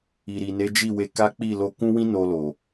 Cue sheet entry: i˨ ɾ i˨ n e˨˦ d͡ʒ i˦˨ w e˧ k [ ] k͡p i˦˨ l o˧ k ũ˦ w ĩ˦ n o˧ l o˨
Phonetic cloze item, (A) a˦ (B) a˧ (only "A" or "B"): A